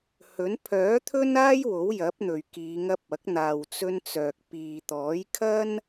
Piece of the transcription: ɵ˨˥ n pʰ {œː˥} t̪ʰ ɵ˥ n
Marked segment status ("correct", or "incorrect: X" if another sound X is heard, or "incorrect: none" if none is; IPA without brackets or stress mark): incorrect: œː˨˥